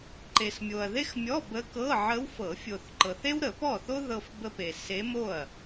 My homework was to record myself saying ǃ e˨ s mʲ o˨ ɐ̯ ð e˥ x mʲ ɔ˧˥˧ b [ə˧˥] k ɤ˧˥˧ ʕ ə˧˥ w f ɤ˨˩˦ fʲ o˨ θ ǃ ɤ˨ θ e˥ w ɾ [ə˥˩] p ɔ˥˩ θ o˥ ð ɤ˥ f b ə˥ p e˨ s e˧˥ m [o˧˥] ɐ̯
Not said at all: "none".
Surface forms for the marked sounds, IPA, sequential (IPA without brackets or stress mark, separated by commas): ə˧˥, ə˨˩˦, o˥˩